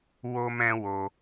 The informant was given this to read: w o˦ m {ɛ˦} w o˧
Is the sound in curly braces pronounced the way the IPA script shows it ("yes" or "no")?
no